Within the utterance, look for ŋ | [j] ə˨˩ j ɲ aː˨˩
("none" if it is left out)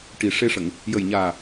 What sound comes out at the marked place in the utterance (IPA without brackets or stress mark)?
j